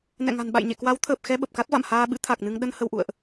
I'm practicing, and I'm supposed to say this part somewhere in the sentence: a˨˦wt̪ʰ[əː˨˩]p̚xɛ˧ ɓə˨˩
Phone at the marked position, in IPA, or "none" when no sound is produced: əː˨˩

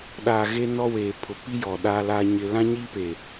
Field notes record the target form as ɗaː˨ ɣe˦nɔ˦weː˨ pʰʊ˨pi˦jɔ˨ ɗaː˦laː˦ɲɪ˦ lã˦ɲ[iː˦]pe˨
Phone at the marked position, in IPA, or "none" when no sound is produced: i˦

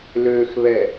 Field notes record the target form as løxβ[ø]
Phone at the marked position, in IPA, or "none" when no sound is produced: ɛ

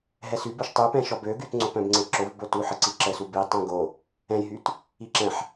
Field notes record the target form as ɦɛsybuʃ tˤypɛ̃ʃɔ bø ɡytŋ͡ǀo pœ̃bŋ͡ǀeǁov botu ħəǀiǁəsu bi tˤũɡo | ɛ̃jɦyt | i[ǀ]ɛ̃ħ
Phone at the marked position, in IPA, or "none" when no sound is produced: ǁ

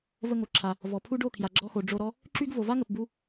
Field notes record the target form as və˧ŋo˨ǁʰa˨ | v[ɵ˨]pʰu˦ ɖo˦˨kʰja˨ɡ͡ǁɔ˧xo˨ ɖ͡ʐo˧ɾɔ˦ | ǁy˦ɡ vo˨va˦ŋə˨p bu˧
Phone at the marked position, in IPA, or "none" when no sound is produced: ɔ˨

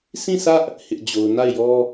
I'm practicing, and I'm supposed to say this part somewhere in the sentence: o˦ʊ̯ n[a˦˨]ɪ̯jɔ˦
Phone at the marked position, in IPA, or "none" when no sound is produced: a˦˨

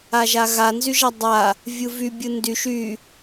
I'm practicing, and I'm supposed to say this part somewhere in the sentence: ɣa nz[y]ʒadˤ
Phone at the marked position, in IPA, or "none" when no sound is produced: y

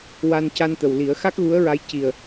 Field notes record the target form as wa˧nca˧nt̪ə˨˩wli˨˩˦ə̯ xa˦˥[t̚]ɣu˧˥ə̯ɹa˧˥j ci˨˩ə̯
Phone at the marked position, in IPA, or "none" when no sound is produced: k̚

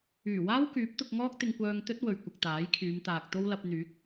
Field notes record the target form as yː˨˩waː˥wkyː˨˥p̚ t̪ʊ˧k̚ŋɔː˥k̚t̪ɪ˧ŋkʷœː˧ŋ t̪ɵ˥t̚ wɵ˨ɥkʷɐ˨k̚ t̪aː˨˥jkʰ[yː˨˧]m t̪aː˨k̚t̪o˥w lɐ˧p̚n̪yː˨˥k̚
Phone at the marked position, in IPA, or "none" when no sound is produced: yː˨˧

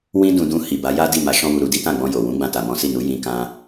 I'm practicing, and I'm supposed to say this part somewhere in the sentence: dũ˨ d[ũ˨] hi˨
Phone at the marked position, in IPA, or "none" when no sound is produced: ũ˧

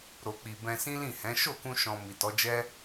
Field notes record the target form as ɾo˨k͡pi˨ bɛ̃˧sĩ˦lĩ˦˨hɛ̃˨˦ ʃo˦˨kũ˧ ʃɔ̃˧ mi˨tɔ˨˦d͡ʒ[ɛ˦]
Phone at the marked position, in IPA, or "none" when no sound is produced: ɛ˦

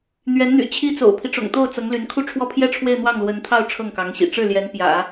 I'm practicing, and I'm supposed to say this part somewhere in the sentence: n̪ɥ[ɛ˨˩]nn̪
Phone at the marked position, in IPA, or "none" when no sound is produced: ɛ˧˥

